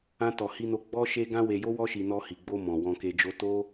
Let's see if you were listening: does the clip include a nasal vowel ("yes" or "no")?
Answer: yes